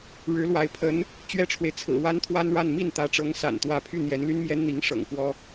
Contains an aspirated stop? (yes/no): yes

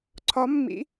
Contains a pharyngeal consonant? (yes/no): no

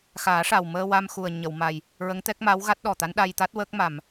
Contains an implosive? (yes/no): yes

